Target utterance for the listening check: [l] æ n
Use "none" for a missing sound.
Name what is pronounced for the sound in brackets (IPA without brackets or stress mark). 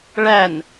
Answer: ɭ